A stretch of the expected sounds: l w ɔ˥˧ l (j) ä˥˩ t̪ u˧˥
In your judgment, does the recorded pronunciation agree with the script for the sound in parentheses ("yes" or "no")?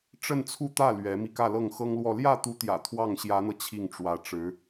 yes